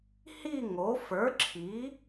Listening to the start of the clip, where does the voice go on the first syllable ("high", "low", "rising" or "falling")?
falling